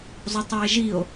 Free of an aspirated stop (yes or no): yes